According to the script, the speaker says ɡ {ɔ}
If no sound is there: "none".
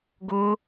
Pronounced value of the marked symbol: ʊ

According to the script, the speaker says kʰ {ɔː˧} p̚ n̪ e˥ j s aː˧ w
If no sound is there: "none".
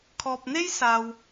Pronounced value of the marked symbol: ɔː˧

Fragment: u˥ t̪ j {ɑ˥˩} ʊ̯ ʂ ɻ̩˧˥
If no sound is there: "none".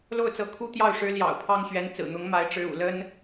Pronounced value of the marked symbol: ɑ˥˩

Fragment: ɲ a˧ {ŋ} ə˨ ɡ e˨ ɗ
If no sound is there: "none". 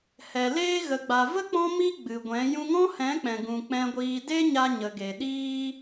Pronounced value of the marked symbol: ɲ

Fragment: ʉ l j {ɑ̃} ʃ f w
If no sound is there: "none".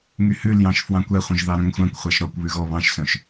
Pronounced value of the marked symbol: ɑ̃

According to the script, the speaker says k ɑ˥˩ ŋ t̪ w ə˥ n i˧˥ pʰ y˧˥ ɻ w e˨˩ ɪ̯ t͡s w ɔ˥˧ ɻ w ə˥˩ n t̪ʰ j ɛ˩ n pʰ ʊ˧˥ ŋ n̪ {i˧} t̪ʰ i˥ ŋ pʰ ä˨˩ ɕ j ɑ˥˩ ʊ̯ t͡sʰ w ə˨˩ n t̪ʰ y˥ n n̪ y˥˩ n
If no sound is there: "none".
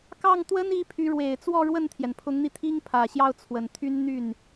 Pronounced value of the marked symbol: i˧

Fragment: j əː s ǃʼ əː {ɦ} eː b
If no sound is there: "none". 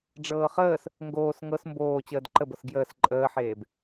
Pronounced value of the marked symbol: ħ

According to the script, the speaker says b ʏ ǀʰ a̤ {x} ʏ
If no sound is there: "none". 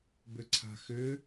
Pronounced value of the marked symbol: x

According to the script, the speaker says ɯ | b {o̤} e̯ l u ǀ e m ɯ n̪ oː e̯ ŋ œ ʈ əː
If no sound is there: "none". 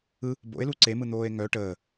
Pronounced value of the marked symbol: o̰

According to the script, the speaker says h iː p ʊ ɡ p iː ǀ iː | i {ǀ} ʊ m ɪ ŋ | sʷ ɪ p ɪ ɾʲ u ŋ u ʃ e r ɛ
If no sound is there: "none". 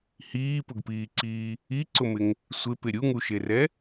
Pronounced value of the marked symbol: ǀ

